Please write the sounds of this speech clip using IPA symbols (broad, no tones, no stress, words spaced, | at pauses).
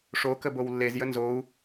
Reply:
ʂokə bowlːezjə nzou̯